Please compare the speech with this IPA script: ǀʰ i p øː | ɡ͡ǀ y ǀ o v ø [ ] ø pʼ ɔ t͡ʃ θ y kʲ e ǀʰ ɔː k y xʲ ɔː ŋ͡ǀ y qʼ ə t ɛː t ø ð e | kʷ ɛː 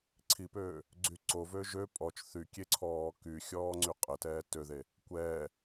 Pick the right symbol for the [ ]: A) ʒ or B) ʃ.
A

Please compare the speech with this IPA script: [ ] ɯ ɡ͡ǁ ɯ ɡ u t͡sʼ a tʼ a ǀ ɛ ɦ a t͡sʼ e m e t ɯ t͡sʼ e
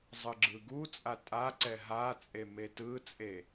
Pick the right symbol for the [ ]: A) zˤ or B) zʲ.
A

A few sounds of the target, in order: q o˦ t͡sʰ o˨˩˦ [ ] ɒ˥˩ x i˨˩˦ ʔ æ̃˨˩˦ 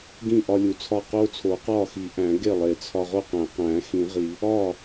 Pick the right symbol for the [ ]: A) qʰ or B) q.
B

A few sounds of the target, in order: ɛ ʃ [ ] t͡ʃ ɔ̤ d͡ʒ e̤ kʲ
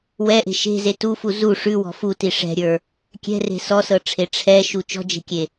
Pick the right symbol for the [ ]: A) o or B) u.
B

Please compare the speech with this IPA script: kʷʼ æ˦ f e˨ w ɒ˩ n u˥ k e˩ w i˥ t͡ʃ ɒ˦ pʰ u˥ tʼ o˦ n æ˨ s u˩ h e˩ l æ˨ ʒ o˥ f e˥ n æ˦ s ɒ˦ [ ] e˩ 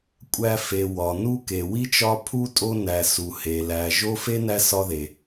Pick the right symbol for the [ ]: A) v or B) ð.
B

